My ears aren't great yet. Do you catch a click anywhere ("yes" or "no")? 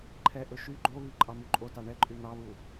yes